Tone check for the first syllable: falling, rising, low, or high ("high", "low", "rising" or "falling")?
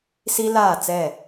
high